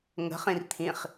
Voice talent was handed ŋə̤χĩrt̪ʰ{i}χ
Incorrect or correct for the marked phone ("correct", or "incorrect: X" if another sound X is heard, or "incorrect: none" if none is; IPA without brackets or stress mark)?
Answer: incorrect: ĩ